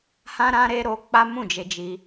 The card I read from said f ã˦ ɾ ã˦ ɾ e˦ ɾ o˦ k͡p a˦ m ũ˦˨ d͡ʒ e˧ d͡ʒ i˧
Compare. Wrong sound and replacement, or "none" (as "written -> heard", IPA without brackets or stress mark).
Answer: f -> h